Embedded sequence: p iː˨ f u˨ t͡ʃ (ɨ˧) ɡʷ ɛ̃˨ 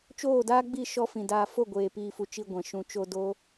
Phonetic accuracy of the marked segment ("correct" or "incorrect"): incorrect